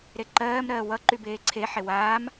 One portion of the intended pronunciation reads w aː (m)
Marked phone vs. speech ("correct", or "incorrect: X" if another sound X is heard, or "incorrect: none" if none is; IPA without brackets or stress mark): correct